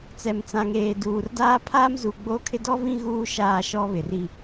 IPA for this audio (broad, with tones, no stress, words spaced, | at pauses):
t͡sɛ˨mt͡sã˨ŋeː˨ duː˨rdaː˦ pʰaː˦mzu˨ ɡ͡boː˦kʰɪ˦ dɔ˦vĩ˦ ɣuː˦ ʃaː˦˨ʃɔ˦βɪ˨ri˦